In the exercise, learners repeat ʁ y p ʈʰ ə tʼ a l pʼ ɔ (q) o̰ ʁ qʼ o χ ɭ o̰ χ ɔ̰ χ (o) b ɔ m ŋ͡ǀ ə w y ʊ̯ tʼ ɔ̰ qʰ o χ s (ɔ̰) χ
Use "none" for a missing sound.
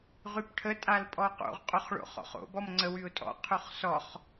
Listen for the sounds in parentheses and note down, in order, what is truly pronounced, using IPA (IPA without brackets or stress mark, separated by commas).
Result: q, o̰, ɔ